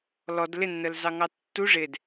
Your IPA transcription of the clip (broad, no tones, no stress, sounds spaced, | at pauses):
l ɔ d l ɪ nː ə l z ɑ ŋ ɑ tː u ʐ ɪ d